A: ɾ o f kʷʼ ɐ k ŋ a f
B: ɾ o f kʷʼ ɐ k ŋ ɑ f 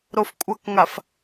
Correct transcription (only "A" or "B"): A